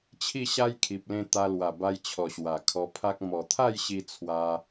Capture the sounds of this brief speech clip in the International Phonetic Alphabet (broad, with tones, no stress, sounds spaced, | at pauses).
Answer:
t͡ɕʰ i˥˧ ɕ a˦ j kʰ i˨ p̚ l ẽ˧ t̪ a˧ l w a˨˩ b a˧ j t͡ɕʰ ɔ˨˩ ɕ w a˨˩ kʰ ɔ˧ pʰ a˦ k̚ m ɔ˨˩ t̪ʰ a˥˧ j ɕ i˧ t͡sʰ w a˦